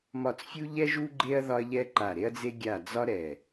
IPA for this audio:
m ɒ˦˨ t͡s fʲ u˥ ʎ ɛ˥ ʒ u˥ ɡ͡ǃ e˥ ɐ̯ ð ɒ˥ ɐ̯ ʎ ɛ˥ ǃ a˦˨ ɾ e˥ ɐ̯ d͡z e˥ ɡʲ a˦˨ d͡z ɒ˥ ɾ ɛ˦˨

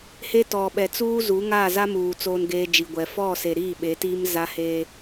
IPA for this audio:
h e˦ t ɔ˨ ɓ ɛ˨ t͡s uː˦ z u˨˦ ŋ a˦˨ z a˦ m uː˨ t͡s oː˦ n ɡ eː˦ d͡ʒ i˨ ɡʷ ɛ˨ f ɔ˦˨ s e˨ ɾ iː˦˨ ɓ e˨˦ t iː˦ m z a˦ h eː˦

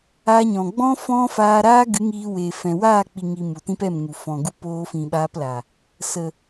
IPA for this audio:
a˧ ɲ ɔ̃˨ ɡ͡b ɔ̃˦ f ɔ̃˦ f aː˧ ɾ aː˦ ɡ ɨ˨˦ ŋ iː˧ w eː˨ f ɛ̃˨ w aː˦˨ k͡p i˨ ŋ i˨ m u˨ t ĩ˦ p ɛ˦˨ m ŋ u˨ f ɔ̃˨ ɡ u˧ p oː˧ f ĩ˨ ɓ aː˧ p l a˨ | s ə˨

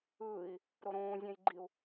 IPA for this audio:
ɯː i̯ | ɾ o ɾ õː zʲ æ̃ j ɡ͡ǃ i u̯

